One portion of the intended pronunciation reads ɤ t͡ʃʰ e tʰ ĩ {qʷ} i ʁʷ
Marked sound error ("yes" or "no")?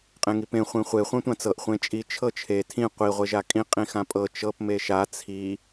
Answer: no